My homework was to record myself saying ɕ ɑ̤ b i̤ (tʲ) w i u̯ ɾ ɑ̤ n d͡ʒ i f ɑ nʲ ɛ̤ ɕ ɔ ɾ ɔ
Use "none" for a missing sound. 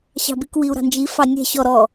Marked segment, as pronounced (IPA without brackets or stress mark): k